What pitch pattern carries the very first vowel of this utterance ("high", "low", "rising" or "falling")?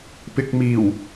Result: low